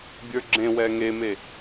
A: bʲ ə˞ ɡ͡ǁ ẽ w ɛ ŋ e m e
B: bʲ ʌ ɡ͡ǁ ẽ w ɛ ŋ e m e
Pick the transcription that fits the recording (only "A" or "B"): A